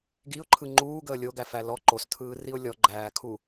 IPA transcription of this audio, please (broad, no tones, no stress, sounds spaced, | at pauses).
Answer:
ɡ i ʊ̯ ǃʰ ɯ ŋ͡ǃ uː ɡ əː lʲ o ɡ æ f æ l ɔ ǃ o s tʰ ɯː r i ʊ̯ lʲ ɔ ɡ͡ǃ æː kʰ u